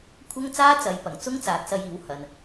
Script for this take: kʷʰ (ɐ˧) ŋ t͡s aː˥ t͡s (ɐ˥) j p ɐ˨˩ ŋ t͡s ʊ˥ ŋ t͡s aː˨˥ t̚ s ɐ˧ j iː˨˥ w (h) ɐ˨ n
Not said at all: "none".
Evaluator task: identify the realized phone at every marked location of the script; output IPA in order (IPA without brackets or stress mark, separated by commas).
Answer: ɐ˥, ɐ˨˧, h